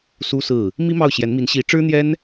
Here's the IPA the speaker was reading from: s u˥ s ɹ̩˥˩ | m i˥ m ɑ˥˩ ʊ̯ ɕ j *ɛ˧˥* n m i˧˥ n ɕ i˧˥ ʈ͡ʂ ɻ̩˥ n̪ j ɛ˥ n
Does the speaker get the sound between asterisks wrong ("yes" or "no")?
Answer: no